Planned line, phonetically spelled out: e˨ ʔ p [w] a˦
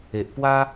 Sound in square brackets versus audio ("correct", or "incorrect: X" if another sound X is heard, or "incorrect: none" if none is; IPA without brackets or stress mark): correct